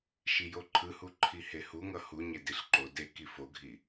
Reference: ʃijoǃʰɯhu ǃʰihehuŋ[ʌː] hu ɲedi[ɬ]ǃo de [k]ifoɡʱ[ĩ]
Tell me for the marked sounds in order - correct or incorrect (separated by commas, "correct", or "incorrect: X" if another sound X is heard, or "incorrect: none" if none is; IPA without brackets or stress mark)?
incorrect: ʌ, correct, correct, incorrect: i